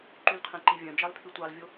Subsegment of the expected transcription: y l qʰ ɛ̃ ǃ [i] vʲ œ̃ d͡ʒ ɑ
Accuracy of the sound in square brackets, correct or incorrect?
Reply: correct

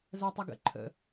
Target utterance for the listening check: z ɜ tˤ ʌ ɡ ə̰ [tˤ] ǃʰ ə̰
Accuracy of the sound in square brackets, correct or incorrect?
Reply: incorrect: none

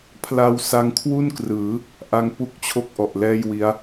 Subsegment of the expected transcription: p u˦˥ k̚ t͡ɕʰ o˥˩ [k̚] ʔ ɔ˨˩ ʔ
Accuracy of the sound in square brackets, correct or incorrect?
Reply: correct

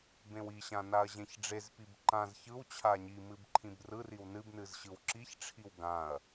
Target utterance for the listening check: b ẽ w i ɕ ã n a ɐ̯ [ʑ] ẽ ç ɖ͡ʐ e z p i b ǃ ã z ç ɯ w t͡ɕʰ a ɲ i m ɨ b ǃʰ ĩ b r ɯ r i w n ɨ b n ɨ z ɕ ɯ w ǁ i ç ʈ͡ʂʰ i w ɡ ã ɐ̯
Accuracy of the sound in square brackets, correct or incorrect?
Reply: correct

